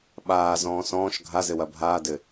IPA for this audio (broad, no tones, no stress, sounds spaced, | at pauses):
ɓ aː z ɔ̃ː s ɔ̃ː ʃ ɡʱ a z ɘ w ɐ bʱ aː d ɘ